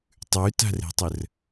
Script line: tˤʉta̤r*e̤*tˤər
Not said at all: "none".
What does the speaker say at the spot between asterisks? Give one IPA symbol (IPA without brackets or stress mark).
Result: e̤